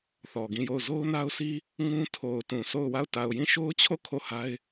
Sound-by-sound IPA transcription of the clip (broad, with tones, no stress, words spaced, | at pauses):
θɔ˨ɡĩ˦˨jo˦˨ʊ̯ zo˦ʊ̯na˦ʊ̯sʰi˦ | ŋũ˦ tʰo˨ʊ̯tũ˨ sʰo˦˨ʊ̯ wa˦˨ʊ̯ ta˨ʊ̯jĩ˦˨ʃo˦ʊ̯t͡ɕʰo˦˨ kʰo˦˨ha˦ɪ̯